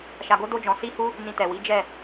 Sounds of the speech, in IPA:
ʃ a˧ ɡ o˦ d o˦ d͡ʒ ɔ̃˧ s i˦ h u˦ | n ĩ˧ t ɛ˨ w i˨˦ d͡ʒ ɛ˦˨

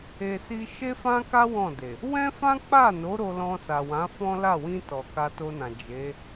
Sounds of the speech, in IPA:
e˨ s i˧ ʃ e˦ f ã˦ k a˦ w ɔ̃˦˨ d e˨ | w ɛ̃˦ f ã˦ k͡p a˦˨ n o˨˦ ɾ o˧ l ɔ̃˧ s a˨ w ã˨˦ f ɔ̃˦ l a˦˨ w ĩ˧ t ɔ˨ k a˧ t o˧ n ã˨ d͡ʒ e˨˦

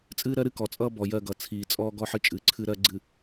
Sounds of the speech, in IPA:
t͡sʼ ɨː˦ ɾ ɜ˦ ɾ ɨ˦ k ɔ˨ t͡sʼ ʌː˦ b ɔ˨ j ɜ˦˨ ɡ ʌ˨ t͡sʰ iː˨ t͡sʼ ɔː˦ ɡ ɔ˦ ħ ɨ˦ t͡ʃʼ ɨː˨ ǀʰ ɨ˦ ɾ ɜ˦ ɡ͡ǀ ɨ˨

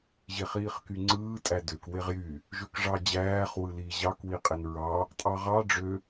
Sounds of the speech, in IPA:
ʑ e χ iː χ k y ŋ͡ǀ ɯː tʼ æ d ø k w e ʁ j y | ʒ ø k ʐ ɑ d͡ʑ æː χ w ɯ l iː ʑ ɑ k w i qʼ e n ɹ ɑ | tʼ ɑ ʁ ɑ ɖ͡ʐ ø

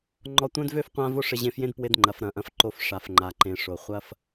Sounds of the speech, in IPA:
ŋ͡ǃ ɔ˧ tʷ œ̃˦ d v ø˦ f qʷ ã˦ v o˦ ʂ ɪ˧ ʑ ẽ˧ f j ẽ˦ d p w ɪ˧ d ŋ͡ǃ ɐ˨ f ɾ ɐ̃˨ ʔ ɐ̃˧ f ǃ o˧ f ʂ a˨ f ŋ͡ǃ a˨ ǃ ẽ˨ ʂ o˨ χʷ ɐ˦ f

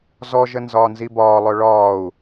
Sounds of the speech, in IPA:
z ɔ ʒ ə n z ɒː n z i b ɒː lˠ œ ɭ ɒː u̯

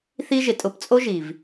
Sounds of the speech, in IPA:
θ i˦ ʒ ɪ˨ tʼ ʊ˧ p t͡sʼ o˦ ʒ i˨ v

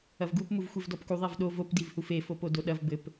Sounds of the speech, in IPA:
ɐ v ɡ u p m u v xʷ e v d ɔ p k u ðˤ e v ɗ o v o p d i v h u f e f o p o d o ɗ ɐ v b ɘ p

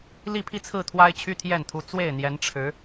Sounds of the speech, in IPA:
l i˥˧ pʰ i˥˧ t͡sʰ ɹ̩˥˩ t̪ʰ w a˥ ɪ̯ t͡ɕʰ y˥ t̪ʰ j ɛ˥˩ n t̪ʰ u˧˥ t͡s w e˥˩ ɪ̯ n̪ j ɛ˧˥ n ʈ͡ʂʰ ɻ̩˧˥

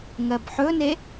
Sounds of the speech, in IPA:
ŋ ɜ b ħ ɵ n e

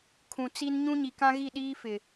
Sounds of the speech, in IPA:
kʰ ũ˨ t͡s i˦ n ɲ ũ˦ ɲ i˨ k ã˦ ɣ i˦˨ ɗ iː˦ f ɪ˨

